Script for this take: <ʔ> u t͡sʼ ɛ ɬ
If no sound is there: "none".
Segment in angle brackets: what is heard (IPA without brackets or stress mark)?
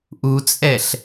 ʔ